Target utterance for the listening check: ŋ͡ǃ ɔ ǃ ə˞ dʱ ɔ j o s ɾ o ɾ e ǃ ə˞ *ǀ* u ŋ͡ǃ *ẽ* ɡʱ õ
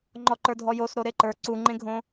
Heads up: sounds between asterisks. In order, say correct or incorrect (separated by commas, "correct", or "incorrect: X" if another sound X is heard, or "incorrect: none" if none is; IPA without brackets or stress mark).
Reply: correct, correct